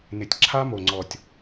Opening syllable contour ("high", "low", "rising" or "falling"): low